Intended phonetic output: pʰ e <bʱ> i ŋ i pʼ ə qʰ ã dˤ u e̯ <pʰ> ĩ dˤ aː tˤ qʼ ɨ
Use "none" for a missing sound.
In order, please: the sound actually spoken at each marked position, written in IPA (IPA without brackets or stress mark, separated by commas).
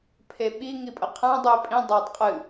ɓ, pʼ